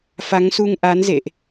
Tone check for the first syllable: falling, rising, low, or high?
rising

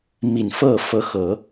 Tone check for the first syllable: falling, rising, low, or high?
low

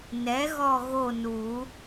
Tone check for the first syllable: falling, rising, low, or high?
rising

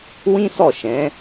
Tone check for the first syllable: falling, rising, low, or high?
high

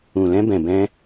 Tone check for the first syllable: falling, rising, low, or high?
low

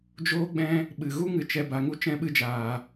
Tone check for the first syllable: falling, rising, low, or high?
high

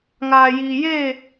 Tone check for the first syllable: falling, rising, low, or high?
low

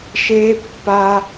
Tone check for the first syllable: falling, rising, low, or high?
high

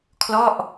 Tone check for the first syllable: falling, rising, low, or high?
falling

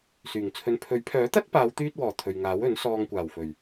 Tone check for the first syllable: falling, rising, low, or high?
low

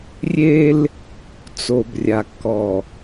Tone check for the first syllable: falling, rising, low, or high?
high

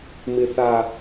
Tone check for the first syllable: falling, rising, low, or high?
high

